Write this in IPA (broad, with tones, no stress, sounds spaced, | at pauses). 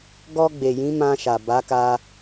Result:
ɡ ɔ˧ ɡ͡b e˨ j ĩ˨˦ m ã˧ ʃ a˨ b a˨˦ k a˧